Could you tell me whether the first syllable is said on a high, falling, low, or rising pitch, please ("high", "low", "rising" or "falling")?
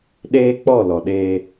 high